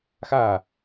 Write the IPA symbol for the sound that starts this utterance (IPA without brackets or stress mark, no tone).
x